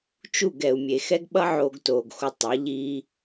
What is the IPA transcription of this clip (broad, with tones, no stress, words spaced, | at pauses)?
t͡ʃu˦˨ɡɛ˨u̯mʲe˨ xɛ˦ɡɓʌ˦ ʕoː˧ɡtoː˨ɡxo˧ tˤʌ˨˦ʎiː˦